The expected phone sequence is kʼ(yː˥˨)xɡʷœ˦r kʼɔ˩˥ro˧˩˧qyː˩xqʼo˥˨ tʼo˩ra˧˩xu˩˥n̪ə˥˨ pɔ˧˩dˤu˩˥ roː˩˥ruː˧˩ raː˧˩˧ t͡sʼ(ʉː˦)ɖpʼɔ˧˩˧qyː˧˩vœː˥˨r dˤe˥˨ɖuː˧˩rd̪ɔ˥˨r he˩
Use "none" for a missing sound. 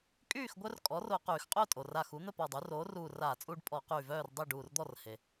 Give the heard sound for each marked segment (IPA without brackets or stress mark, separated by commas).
yː˥˨, uː˦